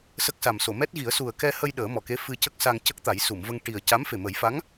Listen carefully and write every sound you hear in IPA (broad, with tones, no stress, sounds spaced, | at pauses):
s ə˦˥ k̚ s a˨˩ m s o˨˩˨ m ɛ˦˥ t̚ ɣ i˨˩˦ ə̯ s u˨˩ ə̯ k ɛ˧ h ə˧ j ɗ əː˨˩˦ m ɔ˨˩ k e˧˥ f ɨ˧ c ə˦˥ k̚ s a˧ ŋ c ə˦˥ k̚ t̪ a˨˩˦ j s u˨˩˨ m v ə˧ ŋ ʈ i˨˩ ə̯ c a˧˥ m f e˨˩ m ə˨˩˦ j f a˧˥ ŋ